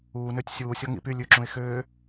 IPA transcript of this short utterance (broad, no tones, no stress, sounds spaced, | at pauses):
uː n ø tʲ sʲ uː sʲ ɔ ŋ ḭ p y lʲ ʉ ǁ ũ ɪ̯ x øː